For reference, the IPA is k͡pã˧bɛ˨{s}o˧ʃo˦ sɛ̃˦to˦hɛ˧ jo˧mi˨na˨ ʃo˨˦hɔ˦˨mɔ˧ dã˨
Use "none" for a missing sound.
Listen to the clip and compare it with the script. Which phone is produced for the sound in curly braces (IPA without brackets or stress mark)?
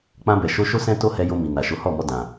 ʃ